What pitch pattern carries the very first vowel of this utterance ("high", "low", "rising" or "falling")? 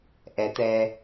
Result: rising